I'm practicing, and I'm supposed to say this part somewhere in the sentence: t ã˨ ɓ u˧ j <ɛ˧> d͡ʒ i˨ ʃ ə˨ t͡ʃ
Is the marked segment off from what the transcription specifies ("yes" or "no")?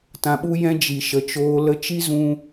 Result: yes